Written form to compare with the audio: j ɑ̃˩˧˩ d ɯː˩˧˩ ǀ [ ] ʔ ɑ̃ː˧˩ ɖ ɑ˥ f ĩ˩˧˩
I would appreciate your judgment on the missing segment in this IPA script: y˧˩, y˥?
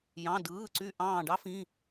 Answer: y˧˩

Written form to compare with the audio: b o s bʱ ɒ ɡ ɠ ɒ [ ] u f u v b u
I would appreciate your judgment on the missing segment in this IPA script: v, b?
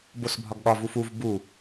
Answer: v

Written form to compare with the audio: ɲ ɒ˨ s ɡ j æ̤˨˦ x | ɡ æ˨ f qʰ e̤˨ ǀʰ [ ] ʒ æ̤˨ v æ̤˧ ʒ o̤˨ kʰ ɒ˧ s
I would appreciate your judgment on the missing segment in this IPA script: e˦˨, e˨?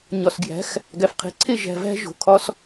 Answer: e˦˨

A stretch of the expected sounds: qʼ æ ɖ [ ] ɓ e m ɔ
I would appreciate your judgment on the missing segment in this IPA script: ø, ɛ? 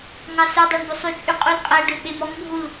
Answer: ø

